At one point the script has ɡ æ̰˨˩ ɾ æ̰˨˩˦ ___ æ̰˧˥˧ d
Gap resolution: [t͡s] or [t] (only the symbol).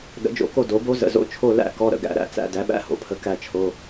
t͡s